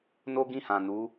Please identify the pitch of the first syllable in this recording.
high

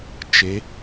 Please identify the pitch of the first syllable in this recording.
rising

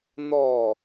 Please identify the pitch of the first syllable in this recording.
falling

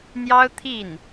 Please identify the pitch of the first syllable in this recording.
high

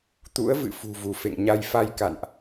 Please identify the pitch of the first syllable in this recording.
rising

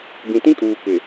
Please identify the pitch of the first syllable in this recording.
low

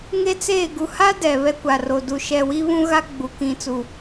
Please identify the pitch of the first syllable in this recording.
high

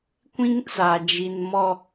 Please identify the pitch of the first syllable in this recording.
high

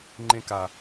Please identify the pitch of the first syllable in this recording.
low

